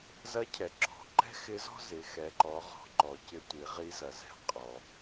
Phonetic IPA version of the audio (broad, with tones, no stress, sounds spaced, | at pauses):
z ɐ˧˥ cʰ ɛ˩ ǁ ɔ̤˩˧ ǃ ɛ̤˥ x ɪ˧˥ z ɔ̤˥ z ɪ˩˧ x ɛ˩˧ ǃ ɔ˩˧ ʁ ɔ̤˩˧ ǃ ɔ˩ c ɪ˧ tʷ i˩˧ ʁ i˧˥ z ɐ˩ z ɛ̤˧˥ qʼ ɔ˩